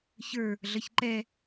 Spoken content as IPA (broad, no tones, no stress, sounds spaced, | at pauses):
ç ə˞ | ɮ ʌ ç ǃ ɛ